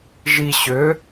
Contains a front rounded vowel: yes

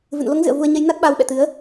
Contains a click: no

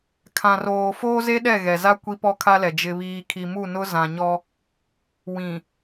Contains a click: no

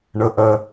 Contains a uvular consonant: no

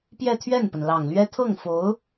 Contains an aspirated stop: yes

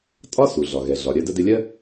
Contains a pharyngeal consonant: no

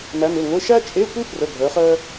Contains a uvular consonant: yes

